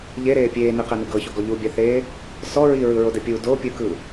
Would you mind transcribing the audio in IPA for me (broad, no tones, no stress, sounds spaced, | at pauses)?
ʎ e ɾ eː pʲ eː n i q ɛ n ɯ ɡ ɤ ç o ɡ ɔ ʎ u bʲ a θ eː | s ɔ ɹ i ɹ ɯ ɹ o d ɛ pʲ u d o pʲ ɯ k ɯ